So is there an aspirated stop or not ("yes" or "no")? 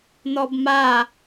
no